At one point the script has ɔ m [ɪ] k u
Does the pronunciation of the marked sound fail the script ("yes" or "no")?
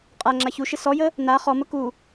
yes